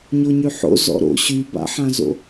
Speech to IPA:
ɲ o ɲ y ħ o̰ z ɔ̰ ɾ o̰ ɕ y b a̰ ħ ã z o̰

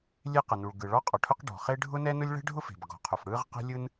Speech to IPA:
lʲ e˥ q ə˩ n u˩ ɭ ɡ ɯ˩ ɭ ɔ˥ qʼ ɔ˩ ʈʰ ʊ˥ q ɖ ɔ̤˩ χ e˥ ɖʱ ʊ˥ n ɛ˥ n ʊ˥ lʲ ɭ ɛ̤˥ ɖʱ ʊ˥ f e̤˩ b ɡ ɔ̤˩ qʰ ʊ˩ f ɽ ɯ˥ ʁ q ɛ̤˥ lʲ ɯ˥ n

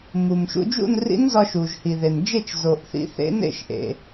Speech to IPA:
m u˩ m ʃ ṵ˧ d͡ʒ ṵ˥˨ n r ḭ˧˥ n z ɒ˧ ʃ u˩ ʒ h i˩ ð e˩ n d͡ʒ e˥˨ t͡ʃ z o˩ ʔ θ ḭ˧ θ ḛ˧˥ n ḛ˥˨ ʃ ʔ ḛ˩

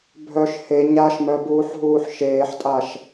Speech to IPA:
bʱ œ ʃ h e ɲ a ʃ m œ b uː ħ ɦ uː ħ ʃ eː ħ tʼ a ʃ

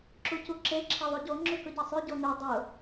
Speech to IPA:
ǁ u c u ǁ e ǁʰ e ðˤ u ɟ o ŋ͡ǁ ʉ k ʊ ɟ ɛ sˤ ʉ ɟ o n ʉ dˤ ʊ

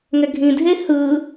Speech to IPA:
ŋ ɛ ɡʱ ĩ dʱ e h ɯ

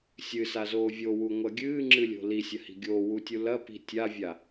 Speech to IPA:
sʲ ɨ s a z oː vʲ o w u ŋʷ ɐ ɡʲ ɨː ŋ͡ǁ ɨ lʲ o̤ l i sʲ ɐ h i̤ ɡʲ oː w u tʲ u l ɐ p i̤ tʲ a vʲ a

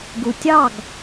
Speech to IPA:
ɡ u˩ tʲ ɑ˥˩ ɡ

